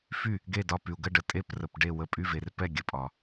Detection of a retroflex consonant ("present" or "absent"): present